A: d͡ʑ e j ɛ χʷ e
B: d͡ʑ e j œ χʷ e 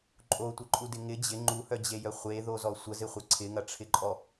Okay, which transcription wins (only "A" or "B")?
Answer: B